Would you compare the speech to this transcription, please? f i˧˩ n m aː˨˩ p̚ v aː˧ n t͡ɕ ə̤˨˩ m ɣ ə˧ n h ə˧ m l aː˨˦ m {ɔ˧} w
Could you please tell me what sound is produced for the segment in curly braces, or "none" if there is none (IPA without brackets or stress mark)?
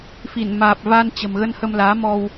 ɔ˧